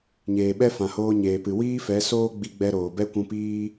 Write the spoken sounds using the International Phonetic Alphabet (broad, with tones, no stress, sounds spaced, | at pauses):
ɲ eː˨ ɓ ɛ˦ f ã˨ h oː˧ ɲ eː˨ p ɨ˨ w iː˦ f ɛ˨˦ s oː˦ ɡ͡b i˧ ɡ͡b ɛ˧ ɾ oː˨ b ɛ˦ kʷ ũ˧ p iː˦